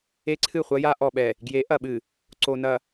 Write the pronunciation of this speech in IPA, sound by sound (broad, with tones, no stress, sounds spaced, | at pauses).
e˦ ǀʰ ɨ˦˨ χʷ ɐ˦ j a˦ ʔ ɔ˨ ɓ ɛ˨ | ɡ j e˨˦ ʔ ɐ˨ ɓ ɨ˨ | ǀ o˨ n ɐ˨